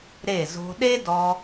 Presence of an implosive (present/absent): present